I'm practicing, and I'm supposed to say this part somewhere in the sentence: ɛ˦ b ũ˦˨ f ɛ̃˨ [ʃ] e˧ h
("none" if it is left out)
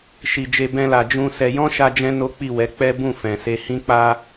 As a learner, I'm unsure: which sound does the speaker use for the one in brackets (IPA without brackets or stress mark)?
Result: s